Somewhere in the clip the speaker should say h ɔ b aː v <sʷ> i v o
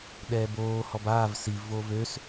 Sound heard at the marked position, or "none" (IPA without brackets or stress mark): s